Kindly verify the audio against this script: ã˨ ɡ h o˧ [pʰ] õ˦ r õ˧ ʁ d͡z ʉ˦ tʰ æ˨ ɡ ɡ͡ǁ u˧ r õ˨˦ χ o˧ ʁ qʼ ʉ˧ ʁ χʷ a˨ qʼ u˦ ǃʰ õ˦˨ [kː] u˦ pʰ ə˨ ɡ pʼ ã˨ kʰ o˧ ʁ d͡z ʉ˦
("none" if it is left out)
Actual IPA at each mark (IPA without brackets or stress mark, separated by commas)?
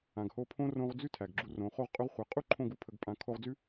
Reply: pʰ, ɡ